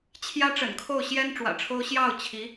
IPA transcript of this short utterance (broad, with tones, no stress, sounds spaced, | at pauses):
t͡ɕʰ j ä˥ ʈ͡ʂ ə̰˨˩ n kʰ o˥˩ ʊ̯ ɕ j ɛ˥ n ʈ͡ʂ w ä̰˨˩ ʈ͡ʂʰ o˥ ʊ̯ ɕ j ɑ˥˩ ʊ̯ t͡ɕʰ i˧˥